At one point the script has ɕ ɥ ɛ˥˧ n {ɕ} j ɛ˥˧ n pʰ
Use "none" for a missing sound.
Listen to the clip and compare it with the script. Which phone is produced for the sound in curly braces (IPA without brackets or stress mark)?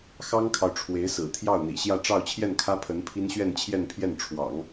t͡ɕʰ